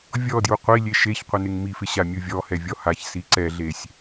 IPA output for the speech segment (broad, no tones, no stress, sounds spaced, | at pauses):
vʲ ɔ d j u qʷ i lʲ e ʃ e ç qʷ ɪ n ɪ ŋ m i f ɪ ɕ a mʲ u vʲ ɔ h ɛ vʲ ɔ h a ç s i ǀ ɛ ɮ e sʲ